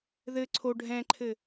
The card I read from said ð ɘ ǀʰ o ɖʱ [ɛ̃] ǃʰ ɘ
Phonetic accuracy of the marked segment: correct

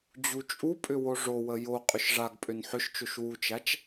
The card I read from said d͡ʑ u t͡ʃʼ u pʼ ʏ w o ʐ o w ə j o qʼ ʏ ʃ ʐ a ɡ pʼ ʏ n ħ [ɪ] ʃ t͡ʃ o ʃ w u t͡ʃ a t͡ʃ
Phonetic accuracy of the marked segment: incorrect: ʏ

